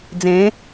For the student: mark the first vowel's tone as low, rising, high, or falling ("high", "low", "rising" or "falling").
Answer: rising